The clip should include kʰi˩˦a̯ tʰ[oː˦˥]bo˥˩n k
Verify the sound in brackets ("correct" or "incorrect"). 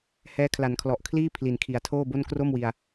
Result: incorrect